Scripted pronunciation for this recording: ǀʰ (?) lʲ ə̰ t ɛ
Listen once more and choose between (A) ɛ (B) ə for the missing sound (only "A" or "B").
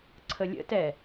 B